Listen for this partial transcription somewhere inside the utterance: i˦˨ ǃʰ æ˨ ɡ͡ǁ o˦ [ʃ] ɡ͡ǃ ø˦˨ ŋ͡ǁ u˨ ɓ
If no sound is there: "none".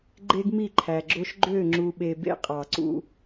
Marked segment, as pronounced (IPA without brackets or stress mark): ʃ